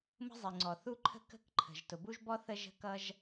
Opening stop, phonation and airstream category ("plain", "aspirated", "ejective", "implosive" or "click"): click